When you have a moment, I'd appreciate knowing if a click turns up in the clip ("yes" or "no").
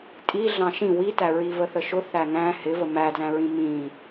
no